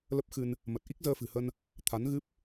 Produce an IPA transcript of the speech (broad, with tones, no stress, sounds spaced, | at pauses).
l ə˦˥ p̚ x ɨ˧ n | m ə˨˩ t̚ ʔ i˦˥ k̚ z əː˧ f ɨ̤˨˩ h ə˧ n | t̪ʰ a˨˦ n ɣ ɨ˦˥ p̚